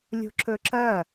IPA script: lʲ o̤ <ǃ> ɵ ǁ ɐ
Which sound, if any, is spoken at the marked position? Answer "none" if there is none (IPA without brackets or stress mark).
ǁ